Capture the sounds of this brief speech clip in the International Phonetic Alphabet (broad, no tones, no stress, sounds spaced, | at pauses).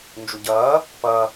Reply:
n d͡ʒ u ɟ ɐː | p ɐ